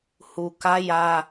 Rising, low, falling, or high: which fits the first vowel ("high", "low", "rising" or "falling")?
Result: low